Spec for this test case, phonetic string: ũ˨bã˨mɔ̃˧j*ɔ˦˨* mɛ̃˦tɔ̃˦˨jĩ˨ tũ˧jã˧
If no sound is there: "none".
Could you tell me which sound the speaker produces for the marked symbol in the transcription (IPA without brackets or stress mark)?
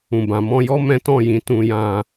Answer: ɔ˦